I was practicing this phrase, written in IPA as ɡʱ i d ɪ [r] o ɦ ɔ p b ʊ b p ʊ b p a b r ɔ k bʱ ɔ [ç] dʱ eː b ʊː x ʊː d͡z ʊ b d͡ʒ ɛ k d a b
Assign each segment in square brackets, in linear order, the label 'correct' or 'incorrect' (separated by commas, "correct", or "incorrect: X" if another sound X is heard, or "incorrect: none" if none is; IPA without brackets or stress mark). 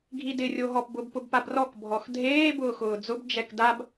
incorrect: rʲ, incorrect: x